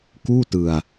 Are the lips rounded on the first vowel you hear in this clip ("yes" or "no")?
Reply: yes